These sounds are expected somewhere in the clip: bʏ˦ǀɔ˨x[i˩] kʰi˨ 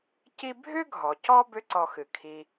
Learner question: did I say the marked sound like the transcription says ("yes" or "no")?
no